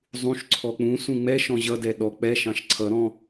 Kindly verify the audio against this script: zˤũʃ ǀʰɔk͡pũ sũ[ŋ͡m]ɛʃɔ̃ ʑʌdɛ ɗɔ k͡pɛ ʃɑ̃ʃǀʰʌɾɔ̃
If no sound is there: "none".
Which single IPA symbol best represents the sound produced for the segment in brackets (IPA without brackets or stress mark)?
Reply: ŋ͡m